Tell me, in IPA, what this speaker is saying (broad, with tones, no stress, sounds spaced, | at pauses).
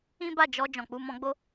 ĩ˦ b a˦˨ d͡ʒ ɔ˧ d͡ʒ ɔ̃˨ k͡p u˧ m ɔ̃˧ ɡ͡b o˦